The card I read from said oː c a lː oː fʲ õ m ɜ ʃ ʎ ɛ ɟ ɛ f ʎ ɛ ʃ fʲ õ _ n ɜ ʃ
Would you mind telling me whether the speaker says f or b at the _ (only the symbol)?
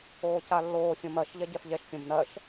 b